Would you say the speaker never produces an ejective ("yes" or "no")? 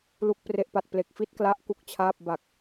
yes